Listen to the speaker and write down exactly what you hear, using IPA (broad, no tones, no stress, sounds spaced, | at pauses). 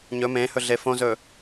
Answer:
ɲ ɵ m ẽ h ɵ ɮ e f õ z ɵ